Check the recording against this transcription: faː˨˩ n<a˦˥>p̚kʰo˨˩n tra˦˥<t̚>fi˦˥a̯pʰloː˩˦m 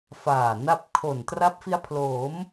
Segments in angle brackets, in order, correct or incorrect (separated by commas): correct, incorrect